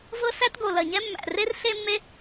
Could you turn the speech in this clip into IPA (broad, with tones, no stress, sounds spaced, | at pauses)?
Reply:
v ɤ˥ s æ˥ t ɡ o˩ l ɐ˩ ɲ ɛ˥ mː æ̰˩ r e˥ r ɬ e˥ mː e˥